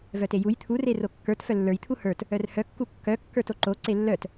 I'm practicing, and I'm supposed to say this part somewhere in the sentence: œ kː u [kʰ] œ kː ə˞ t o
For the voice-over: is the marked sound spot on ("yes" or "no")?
no